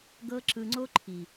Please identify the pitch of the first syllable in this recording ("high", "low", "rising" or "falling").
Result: high